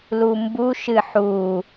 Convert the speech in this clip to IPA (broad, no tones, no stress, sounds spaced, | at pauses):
l u m b u ʃ ɨ ħ u